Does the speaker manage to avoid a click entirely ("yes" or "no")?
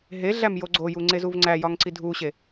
no